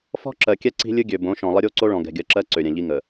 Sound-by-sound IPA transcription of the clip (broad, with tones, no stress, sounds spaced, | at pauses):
f ɔ̤˦ ǁ ɜ˨ kʲ ɛ˦ ǀ i̤˦ lʲ ɨ˦ ɡʲ ø˨ b õ˨˦ ʃ ɔ̃˨ lˠ ə˦ ɾʲ o˦ ǀ o˦ ɭ ɔ̃˨ ɡ ɛ̤˨ ɡʲ ɜ˨ ǁ ɜ˦ ǀ ø˨ ɾʲ ɛ̃˨ ʎ i˦ ŋ ə˨